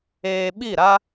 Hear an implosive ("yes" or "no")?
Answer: yes